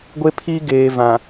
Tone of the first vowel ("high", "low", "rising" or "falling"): high